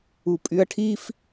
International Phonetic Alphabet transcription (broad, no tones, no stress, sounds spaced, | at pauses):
u pʼ y ɐ̯ ʈʰ i f